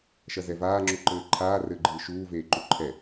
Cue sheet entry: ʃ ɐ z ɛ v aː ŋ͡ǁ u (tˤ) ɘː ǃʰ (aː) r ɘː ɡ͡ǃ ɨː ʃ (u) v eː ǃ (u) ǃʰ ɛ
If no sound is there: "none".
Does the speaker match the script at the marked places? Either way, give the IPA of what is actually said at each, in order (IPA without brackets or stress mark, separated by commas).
ǃ, aː, uː, u